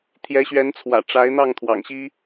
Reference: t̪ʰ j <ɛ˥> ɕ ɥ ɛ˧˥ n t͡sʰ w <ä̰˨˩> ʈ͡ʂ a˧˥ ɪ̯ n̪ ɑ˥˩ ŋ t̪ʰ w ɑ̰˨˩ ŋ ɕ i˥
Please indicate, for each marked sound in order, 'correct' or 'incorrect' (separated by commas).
incorrect, correct